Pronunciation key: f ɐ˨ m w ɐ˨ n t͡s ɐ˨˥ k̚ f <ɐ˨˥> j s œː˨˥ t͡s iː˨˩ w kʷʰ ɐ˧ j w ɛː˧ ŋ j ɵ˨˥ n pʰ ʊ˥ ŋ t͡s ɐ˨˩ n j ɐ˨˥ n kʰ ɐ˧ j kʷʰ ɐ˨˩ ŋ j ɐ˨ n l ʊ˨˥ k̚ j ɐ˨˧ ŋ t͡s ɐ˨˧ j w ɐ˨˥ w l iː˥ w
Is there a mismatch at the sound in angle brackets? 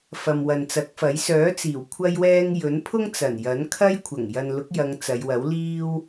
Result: no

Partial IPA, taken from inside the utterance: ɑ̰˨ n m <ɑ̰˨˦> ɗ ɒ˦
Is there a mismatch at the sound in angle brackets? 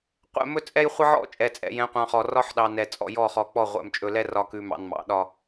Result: no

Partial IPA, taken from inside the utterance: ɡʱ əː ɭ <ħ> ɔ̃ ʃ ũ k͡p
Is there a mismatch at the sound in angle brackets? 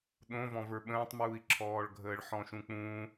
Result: no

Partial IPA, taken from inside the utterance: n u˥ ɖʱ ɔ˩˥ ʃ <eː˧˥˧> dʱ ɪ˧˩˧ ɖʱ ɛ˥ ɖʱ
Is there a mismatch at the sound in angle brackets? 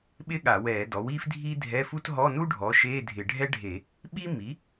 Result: no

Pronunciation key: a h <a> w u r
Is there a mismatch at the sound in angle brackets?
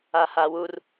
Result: no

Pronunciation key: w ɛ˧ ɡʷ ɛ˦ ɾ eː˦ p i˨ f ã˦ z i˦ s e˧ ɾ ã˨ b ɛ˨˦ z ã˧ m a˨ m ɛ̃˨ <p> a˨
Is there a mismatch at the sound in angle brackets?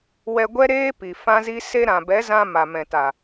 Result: yes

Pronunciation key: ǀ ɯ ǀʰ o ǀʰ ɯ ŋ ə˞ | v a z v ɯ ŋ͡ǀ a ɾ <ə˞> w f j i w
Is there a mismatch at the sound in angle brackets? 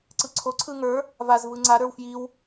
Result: no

